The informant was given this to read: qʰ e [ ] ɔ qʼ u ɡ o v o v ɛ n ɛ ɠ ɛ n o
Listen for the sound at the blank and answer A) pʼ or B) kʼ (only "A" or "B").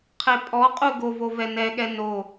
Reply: A